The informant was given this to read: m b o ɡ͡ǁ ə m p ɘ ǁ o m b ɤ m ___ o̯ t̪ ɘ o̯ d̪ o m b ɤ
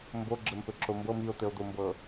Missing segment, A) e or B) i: B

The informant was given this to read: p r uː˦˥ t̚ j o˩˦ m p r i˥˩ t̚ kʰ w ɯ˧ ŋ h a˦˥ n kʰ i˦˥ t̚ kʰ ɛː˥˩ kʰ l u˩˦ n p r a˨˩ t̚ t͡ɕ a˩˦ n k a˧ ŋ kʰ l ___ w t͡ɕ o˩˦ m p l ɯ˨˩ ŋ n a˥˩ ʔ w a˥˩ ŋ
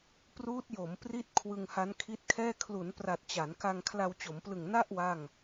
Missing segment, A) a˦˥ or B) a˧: B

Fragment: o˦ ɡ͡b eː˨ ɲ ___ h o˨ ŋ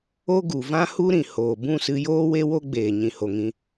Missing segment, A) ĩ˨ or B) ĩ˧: A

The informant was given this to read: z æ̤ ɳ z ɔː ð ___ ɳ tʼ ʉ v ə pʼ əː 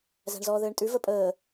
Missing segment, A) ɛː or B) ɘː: B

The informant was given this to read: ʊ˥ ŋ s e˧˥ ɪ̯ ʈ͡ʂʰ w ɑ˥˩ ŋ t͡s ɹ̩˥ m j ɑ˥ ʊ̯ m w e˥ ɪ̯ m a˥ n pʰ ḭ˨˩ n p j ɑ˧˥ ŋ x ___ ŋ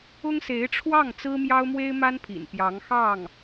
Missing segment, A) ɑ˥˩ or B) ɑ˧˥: A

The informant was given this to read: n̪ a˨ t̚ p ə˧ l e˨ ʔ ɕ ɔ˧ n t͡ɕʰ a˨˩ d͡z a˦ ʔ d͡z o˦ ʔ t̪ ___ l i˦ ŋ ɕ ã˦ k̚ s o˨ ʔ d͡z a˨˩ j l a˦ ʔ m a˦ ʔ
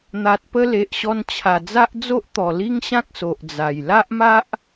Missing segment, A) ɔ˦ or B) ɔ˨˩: B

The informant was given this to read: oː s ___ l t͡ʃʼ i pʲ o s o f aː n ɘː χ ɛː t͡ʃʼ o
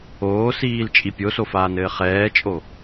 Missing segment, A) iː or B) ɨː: A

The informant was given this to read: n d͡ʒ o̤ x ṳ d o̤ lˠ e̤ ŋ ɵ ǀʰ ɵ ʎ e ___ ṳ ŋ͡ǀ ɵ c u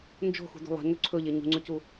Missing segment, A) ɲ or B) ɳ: A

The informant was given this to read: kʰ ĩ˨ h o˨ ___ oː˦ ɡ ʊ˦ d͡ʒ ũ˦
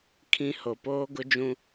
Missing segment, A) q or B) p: B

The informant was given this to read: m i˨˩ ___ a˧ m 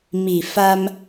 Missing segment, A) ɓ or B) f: B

